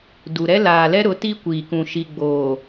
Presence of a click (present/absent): absent